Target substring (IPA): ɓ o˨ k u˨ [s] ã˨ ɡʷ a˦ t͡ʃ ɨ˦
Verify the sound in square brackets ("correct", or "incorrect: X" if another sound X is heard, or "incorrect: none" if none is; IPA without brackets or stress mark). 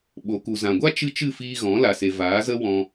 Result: incorrect: z